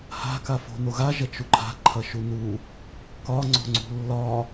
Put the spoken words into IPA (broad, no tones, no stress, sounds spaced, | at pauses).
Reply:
h a̤ k a f o̤ n o ɣ a ʒ ɐ t͡ʃ u ǃʰ a̤ ǃʰ ɐ ʃ u n u | k ɒ ŋ͡ǀ o̤ ŋ͡ǀ ṳ lː ɒ